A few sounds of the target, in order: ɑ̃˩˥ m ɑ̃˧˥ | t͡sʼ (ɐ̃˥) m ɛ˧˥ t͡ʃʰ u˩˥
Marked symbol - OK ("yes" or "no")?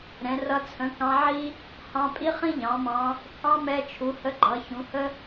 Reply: no